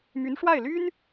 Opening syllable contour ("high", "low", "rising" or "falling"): rising